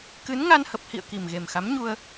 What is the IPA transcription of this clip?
kɨ˨˦nŋa˧nhə˨˩p̚hḭ˧˨ə̯ ki˨˩mɣe˨˩mxa˨˦mɲu˧ə̯

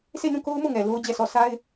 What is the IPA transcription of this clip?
sʰe˦˨nũ˦˨ko˦ʊ̯mo˦˨ ŋɛ˨lo˦ʊ̯d͡ʑɛ˦˨sɔ˦˨ sa˦ɪ̯

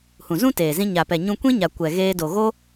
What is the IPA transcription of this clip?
hũ˨zũ˦teː˨zĩ˧ ɲa˨ pɛ˨ɲũ˧kʷĩ˦ɲa˨ kʷɛ˨ɣeː˧do˨ɣo˦

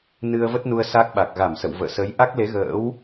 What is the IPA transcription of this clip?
nɨ˧ə̯və˦˥t̚nu˧ə̯ sa˦˥k̚ɓa˨˩k̚ ɣa˧˩msə̰˧˨wvə̰ː˧˨ sə˨˦j ʔa˦˥k̚le˨˦ ɣə̰ː˧˥w

